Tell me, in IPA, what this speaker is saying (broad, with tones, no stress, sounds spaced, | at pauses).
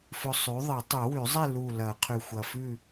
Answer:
f ɵ˧ sˤ ʉ˩˥ ðˤ ɨ˨˩˦ tˤ ʉ˨˩˦ w ʉ˨˩˦ zˤ e˥˨ l u˧˩ l ɐ˨˩˦ qʰ ʉ˧˩ xʷ ɐ˧˩ f ʉ˥˨